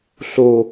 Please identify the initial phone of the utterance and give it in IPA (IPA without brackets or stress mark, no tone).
ɬ